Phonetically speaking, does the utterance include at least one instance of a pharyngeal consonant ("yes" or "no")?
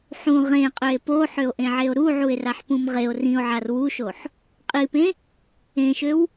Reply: yes